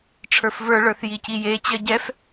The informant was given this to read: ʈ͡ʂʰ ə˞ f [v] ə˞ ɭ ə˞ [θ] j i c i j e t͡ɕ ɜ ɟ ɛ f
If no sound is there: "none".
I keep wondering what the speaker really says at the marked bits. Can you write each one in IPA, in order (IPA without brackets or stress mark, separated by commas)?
v, θ